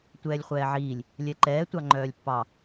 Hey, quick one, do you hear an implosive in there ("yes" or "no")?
no